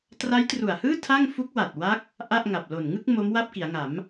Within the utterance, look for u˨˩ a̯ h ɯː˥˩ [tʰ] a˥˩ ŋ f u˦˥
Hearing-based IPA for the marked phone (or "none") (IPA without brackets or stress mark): tʰ